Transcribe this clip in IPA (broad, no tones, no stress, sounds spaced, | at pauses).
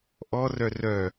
ʔ ɔ r œ r œ